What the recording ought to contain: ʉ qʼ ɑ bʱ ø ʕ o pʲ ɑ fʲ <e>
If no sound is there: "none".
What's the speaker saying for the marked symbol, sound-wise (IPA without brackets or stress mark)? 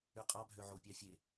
e